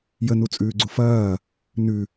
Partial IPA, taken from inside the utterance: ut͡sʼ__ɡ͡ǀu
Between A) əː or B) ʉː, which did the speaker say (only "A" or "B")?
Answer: B